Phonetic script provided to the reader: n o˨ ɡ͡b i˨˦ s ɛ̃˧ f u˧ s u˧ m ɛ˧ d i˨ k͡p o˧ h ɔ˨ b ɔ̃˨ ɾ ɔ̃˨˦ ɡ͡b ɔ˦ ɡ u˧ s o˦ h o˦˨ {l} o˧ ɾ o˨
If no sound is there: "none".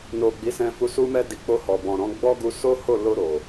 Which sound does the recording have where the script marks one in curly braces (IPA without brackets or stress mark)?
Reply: l